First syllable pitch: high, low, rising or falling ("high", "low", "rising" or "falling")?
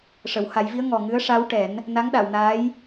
low